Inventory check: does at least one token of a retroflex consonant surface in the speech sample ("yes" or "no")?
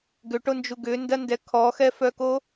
yes